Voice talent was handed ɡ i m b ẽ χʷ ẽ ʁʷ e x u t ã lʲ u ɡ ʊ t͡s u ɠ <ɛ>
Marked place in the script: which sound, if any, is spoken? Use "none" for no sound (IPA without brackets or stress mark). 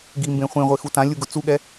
ɛ